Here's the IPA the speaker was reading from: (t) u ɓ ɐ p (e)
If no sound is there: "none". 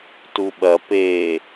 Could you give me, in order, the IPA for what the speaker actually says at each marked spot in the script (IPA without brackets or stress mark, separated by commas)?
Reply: t, e